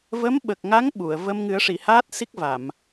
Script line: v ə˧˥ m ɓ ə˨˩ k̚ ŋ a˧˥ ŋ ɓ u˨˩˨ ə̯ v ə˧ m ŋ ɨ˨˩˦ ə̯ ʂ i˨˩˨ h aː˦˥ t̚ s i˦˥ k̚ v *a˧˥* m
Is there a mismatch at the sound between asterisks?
yes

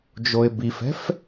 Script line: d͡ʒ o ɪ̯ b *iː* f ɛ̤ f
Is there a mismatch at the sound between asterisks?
yes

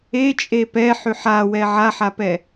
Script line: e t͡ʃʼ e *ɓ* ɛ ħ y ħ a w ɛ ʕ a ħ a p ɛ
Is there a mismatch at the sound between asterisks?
yes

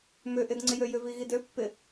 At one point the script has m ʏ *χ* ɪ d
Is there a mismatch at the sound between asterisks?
yes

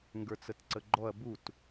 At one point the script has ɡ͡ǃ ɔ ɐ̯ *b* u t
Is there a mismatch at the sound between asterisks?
no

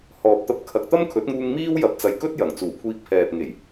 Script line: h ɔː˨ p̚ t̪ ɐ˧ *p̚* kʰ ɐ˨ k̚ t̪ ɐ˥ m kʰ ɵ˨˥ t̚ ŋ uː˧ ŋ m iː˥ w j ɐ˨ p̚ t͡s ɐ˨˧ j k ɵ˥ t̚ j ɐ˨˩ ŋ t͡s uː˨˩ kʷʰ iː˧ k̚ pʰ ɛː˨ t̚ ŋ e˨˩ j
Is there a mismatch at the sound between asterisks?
no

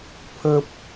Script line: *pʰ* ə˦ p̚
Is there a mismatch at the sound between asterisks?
no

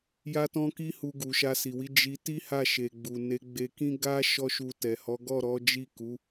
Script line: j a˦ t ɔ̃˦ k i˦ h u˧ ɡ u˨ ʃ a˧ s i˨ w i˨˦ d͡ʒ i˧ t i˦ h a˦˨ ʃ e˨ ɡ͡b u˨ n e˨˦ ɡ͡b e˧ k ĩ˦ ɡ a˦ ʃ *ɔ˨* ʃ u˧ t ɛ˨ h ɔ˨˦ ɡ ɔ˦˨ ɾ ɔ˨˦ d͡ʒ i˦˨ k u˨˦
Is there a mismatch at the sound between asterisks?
yes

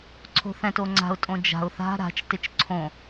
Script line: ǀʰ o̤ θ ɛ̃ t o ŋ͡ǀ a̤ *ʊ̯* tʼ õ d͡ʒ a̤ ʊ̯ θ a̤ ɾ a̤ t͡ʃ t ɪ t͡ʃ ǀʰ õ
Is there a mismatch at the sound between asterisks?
no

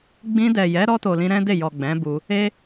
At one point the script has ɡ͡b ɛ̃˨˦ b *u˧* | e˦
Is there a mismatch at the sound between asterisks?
no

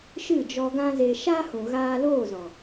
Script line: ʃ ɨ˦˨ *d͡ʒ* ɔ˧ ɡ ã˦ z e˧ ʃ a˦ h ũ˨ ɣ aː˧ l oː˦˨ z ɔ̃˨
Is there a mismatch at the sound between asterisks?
no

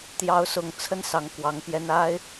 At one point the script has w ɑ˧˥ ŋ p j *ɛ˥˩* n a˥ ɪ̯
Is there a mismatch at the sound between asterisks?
yes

